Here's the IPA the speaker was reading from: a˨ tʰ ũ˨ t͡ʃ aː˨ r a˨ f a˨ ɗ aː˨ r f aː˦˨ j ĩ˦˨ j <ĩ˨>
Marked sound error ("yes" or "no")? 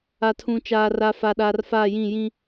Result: yes